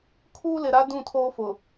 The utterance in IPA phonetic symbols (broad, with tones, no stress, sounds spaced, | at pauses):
kʰ uː˦ l ɪ˨ ɾ a˦ d ũ˦˨ tʰ oː˦ f ʊ˨